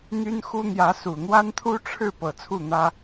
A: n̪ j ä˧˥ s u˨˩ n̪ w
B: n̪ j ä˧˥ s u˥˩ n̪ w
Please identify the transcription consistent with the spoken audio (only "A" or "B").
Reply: A